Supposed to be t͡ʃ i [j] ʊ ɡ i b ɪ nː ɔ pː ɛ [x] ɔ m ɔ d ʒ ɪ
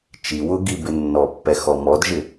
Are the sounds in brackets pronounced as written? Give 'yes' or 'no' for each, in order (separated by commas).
no, yes